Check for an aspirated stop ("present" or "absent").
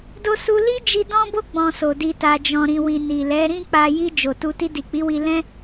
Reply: absent